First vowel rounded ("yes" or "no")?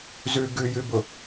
yes